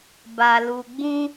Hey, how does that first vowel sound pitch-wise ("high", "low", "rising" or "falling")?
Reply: low